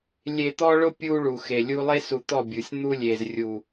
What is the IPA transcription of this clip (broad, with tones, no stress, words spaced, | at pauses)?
lʲe˨t̪ɔ˦ɭʊ˦ pʲu˦ɭu˨xe˨lʲu˦ lˠe˦su˨t̪ɔ˦˨ bʲu˨sʲ n̪u˦lʲe˨zrʲu˨